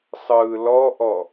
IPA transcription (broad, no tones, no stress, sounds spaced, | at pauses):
sˤ ɯː l ɔ ʔ ɔ